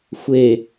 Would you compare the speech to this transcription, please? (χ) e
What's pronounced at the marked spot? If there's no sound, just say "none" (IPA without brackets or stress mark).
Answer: xʷ